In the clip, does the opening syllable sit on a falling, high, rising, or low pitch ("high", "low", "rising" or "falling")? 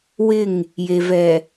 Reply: falling